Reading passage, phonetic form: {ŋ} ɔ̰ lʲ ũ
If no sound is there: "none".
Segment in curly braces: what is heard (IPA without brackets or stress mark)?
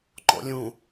ŋ͡ǃ